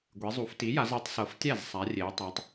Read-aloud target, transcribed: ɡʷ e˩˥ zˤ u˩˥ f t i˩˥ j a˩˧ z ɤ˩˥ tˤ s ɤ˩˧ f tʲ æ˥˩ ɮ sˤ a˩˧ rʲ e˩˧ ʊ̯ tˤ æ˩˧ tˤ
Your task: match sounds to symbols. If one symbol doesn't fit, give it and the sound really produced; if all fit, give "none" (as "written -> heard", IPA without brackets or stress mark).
ɮ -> z